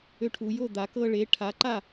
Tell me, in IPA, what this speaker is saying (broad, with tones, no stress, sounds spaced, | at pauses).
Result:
ø˧ ʈʰ u˩˧ j o˥˨ d̪ a˩˧ k ɤ˧ ɭ e˩˥ ʈʰ a˩˥ ǃ a˥˨